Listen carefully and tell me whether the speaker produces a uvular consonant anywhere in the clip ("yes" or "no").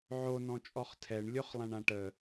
yes